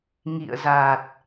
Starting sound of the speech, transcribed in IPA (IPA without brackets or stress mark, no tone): ŋ